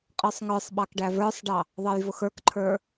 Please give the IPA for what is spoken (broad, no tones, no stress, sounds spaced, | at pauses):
qʼ ə˞ sˤ ŋ ə˞ sˤ ɓ ɑ k ɖ æ v ə˞ sˤ ɖ ɑ | ðˤ ʌ j v ʊ x ə˞ k ǃʰ ə˞